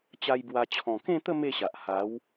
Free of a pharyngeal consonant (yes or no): yes